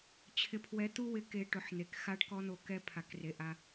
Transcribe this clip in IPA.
t͡ɕʰ ɪ˨ pʰ w ɛ˨˦ t̪ u˦ w ɪ˨˦ k e˨ ʈ ʊ˨˦ ħ n̪ e˨ k x a˦ ɖ k ɔ˦ n̪ o˨ k ɛ˦ pʰ a˨ k r e˨ ʔ a˦

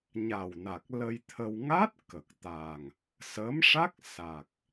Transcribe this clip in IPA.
ɲ a˨˩ w n a˨˩ k̚ l ə˧ j t̪ʰ ə˧ w ŋ a˦˥ t̚ k ə˨˩ k̚ t̪ a˨˩ ŋ | s ə˧˥ m ʂ a˦˥ k̚ s a˨˩ k̚

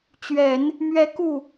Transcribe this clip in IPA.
t͡ɕ ɥ ɛ˨˩˦ n | m ɥ ɛ˧˥ k u˥˩

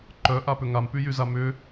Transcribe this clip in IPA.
ǃ œ ʔ a p ʏ ŋ a m p y j y z a m ʏ

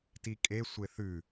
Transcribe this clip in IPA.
t i kʼ e sʷ e θ ʉ

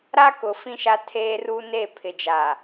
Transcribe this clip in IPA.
ɾ a˦ k ʊ˨ f ĩ˦ ʃ a˦ tʰ eː˦ r uː˦ n e˦˨ pʰ ɪ˨ d͡ʒ a˨

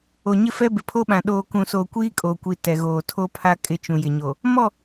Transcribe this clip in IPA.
o˨ ɲ ɪ˦ f ɛ˦ b ɪ˨ pʰ o˦ ɓ ã˨ ɗ oː˨ k ũ˨ s oː˨ kʷ iː˦ kʼ o˨ kʷ i˨ t ɛ˨ ɣ oː˨ tʰ o˦ pʰ a˦ kʼ ɪ˦ t͡ʃ ũ˨ j ɪ˨ ɲ o˨ | m ɔ˦˨

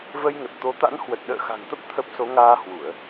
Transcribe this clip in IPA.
v ə˧ j ŋ ə˨˩ t̚ t̪ o˨˦ t̪ a̰˧˥ n h w ə˨˩ t̚ ɗ ə̰ː˧˨ x a̤˨˩ ŋ t̪ ə˦˥ p̚ t̪ʰ ə˦˥ p̚ s o˨˦ ŋ aː˧ h w u˧˩˨ ə̯

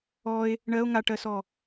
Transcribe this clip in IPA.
ɔ e̯ | ɳ ɜ o̯ ŋ a ʈ ɜ s ɔ

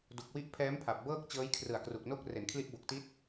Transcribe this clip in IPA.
d u˨˩ k̚ w i˦˥ ʔ pʰ ɛː˦˥ m pʰ a˨˩ p̚ b ɤː˥˩ k̚ t͡ɕ ɤː˦˥ j kʰ r ɯ˨˩ a̯ k r u˨˩ k̚ n o˦˥ k̚ r e˩˦ n kʰ l i˦˥ ʔ b o˨˩ k̚ t i˦˥ t̚

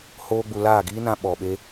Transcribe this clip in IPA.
h oː˦ ɡ͡b u˧ l aː˦˨ ɡ iː˦ n ã˧ ɓ ɔ˨ ɓ e˦

